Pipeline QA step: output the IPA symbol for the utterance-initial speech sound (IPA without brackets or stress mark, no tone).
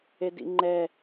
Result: e